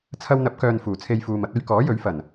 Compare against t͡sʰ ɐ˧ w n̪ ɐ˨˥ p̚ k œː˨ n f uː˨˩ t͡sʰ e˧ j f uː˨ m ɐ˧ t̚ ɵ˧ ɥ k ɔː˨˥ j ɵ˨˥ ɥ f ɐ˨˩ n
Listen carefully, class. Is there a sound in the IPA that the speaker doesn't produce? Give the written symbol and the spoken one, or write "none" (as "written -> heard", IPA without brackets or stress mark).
none